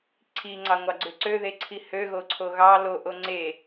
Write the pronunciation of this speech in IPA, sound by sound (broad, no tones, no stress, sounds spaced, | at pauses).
ǀʰ i ŋ͡ǀ ɑ ŋʷ ɑ ɡ͡ǀ ø ǀ ø ð e ǀʰ i h ø ɣ o ǀʰ o ɣ ɑ l o ʔ o ŋ͡ǀ e